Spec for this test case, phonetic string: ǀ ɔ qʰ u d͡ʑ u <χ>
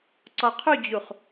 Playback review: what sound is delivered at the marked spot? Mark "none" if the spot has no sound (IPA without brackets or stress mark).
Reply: χ